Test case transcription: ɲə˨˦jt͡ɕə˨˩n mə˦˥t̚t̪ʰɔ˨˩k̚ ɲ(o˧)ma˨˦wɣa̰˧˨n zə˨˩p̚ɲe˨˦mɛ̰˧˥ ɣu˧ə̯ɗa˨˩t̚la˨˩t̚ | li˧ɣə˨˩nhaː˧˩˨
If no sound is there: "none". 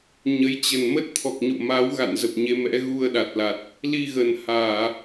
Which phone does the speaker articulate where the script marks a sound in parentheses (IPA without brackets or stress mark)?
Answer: o̰˧˨